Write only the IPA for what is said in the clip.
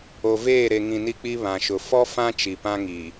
o˨ v eː˦˨ ɾ e˨ ŋ ĩ˨ n i˦ k͡p i˦ β ã˨ ʃ ʊ˨ f ɔ˦ f ã˦ t͡ʃ i˨ p ã˦ ŋ i˨

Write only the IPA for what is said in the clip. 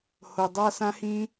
h o˨ dˤ a˦ s ã˦ h ĩ˦

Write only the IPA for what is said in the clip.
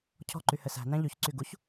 cʰ ɔ̤ ǃ y h ɘ s æ̤ n æ̃ ʎ y ç ǀ y ɡ u ç

